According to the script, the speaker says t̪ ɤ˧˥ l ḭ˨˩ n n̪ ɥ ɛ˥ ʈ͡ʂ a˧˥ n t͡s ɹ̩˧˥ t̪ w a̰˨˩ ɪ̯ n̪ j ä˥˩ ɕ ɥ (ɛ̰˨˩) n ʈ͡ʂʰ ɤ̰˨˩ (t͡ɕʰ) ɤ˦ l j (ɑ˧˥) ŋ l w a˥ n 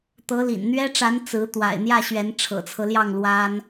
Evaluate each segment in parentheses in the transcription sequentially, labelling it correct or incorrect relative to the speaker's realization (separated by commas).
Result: incorrect, incorrect, incorrect